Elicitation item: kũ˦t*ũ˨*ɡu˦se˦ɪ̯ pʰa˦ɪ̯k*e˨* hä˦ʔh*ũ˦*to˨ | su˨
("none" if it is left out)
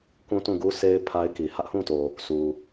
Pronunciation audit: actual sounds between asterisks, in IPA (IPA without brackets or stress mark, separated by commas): ũ˦˨, i˨, ũ˦˨